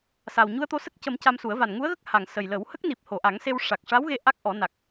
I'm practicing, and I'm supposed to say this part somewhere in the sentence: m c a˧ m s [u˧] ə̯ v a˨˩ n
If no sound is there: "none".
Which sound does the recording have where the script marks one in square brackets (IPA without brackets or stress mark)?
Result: u˨˩˦